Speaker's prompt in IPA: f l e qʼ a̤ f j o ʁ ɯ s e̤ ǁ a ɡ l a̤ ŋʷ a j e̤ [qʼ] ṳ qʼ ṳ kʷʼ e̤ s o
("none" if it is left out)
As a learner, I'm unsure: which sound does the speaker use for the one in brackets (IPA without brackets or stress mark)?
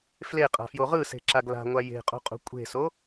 qʼ